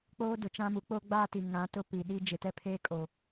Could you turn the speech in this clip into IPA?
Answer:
k͡p oː˦ d ʊ˨ t͡ʃ ã˦ m u˨˦ k͡p o˦ ɡ͡b aː˦ t i˨ ŋ ã˨˦ t ʊ˦ p i˨ ɗ i˦ d͡ʒ ɪ˨ t ɛ˦ pʰ eː˦ kʼ o˨

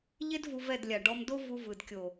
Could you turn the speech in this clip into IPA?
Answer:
ʎ e˦ d v u˧ v ɛ˦˨ d lʲ a˨ ɖ ɔ˧ m d o˦ v u˧ v ɯ˨ d kʲ o˨

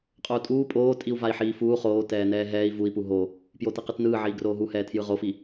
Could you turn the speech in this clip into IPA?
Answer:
qʼ o u̯ tʼ uː pʼ oː tʼ i u̯ v a i̯ ħ iː f uː χ oː t ɛː n ɛː ɦ ɛː i̯ v u i̯ p u ɦ o | p j o t i q ɯ t n ɯː ʕ iː ɡ r oː ɦ u h ɛː tʰ j ɯ ʁ o f i

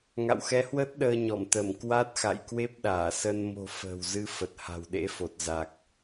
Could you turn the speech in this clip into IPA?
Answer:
ŋ a̰˧˨ w x ɛ˨˦ h w əː˦˥ t̚ ɗ əː˧ ɲ ɔ˧˩ m t̪ ə˧˩ m k w a˦˥ t̚ x a̰˧˨ j k w e˦˥ p̚ ɗ aː˧˩ s ə˧ n m o̤˨˩ f ə̤ː˨˩ w z ɨ˧ f ə˨˩ t̚ h a̤˨˩ w ɗ ḛ˧˥ f o˨˩ t̚ z a˨˩ k̚

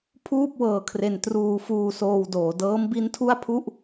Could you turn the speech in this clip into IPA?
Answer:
pʰ uː˥˩ p̚ w ɤː˧ kʰ r e˧ n t r uː˧ f uː˧ s oː˧ w d oː˩˦ d ɤː˦˥ m b i˦˥ n tʰ u˥˩ a̯ pʰ u˥˩ ʔ

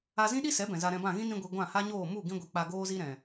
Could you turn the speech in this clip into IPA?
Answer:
a˧ z ĩ˦ ɗ i˦ s ɛ˨˦ b ɛ̃˨ z a˧ ɾ ɛ̃˧ b ã˦˨ ɣ ĩ˦ n ĩ˧ ɡʷ i˨ ɡʷ ã˦˨ h a˦ ɲ oː˦˨ m u˦˨ ɡ ĩ˧ ɡʷ i˨ k͡p a˧ ɡ oː˦ z i˦ ɾ ɛ̃˨

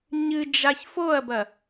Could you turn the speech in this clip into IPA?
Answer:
ɲ ɨ d͡ʒ a ç f o ɐ̯ b ɐ

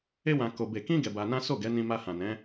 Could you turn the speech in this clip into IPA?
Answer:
e˦ w ã˧ k o˧ b e˧ k ĩ˦ ɡ ɛ˧ b a˧ n ã˦ s o˦˨ ɡ ɛ˨˦ n ĩ˧ m a˧ h ã˨ n ɛ̃˨˦

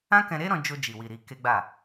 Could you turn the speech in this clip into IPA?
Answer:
ã˦ k ɛ̃˧ ɾ e˦ ɾ ɔ̃˧ d͡ʒ o˧ d͡ʒ i˨ w i˨ ɾ i˧ k e˦ ɡ͡b a˦˨

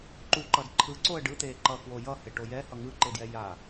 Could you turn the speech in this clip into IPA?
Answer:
ǃ u ǃ ʌ d ǃʰ ɯ ǀ o ə̯ ɖ ɯ t̪ eː ǃ ʌ k w o j ʌ h e ʈ o j ɛ h ʌ ŋ ɯ ǃ e d j ɛ j a

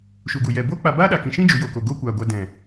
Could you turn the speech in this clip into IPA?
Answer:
ʃ u˨ ɡ u˨ j ɛ˨ b oː˦ k͡p a˧ b aː˦ ɗ a˨ k ĩ˨ ʃ ĩ˦ d͡ʒ u˨˦ j o˨ k o˨ ɡ oː˦ kʷ aː˨ ɡʷ a˧ d ɛ̃˨

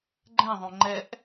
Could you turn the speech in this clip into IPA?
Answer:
ɡ͡ǃ ɛ̃ ðˤ õ ŋ͡ǃ ɛ ʔ

